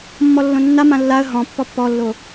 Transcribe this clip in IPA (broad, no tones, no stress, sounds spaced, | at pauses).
mː ɔ lː õ nː a m ã lː a ə̯ ɦ ɔ̃ pː ɔ pː ɔ lː o